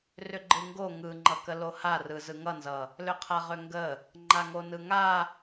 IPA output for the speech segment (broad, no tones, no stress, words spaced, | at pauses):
rʏɡ͡ǃɯŋɡo ŋɯŋ͡ǃʌ kəloharɯ zɯŋʌnzʌ | lʏqʰaʁʏŋɡə | ŋ͡ǃaŋonɯŋa